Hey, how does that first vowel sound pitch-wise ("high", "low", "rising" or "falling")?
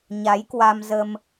rising